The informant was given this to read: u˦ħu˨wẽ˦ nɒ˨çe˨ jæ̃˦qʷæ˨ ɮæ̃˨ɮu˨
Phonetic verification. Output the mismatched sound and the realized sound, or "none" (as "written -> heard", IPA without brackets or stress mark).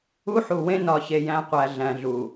none